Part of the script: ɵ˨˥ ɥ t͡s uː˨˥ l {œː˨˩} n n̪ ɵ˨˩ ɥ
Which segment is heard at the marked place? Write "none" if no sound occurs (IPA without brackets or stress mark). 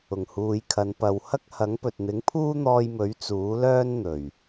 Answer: œː˥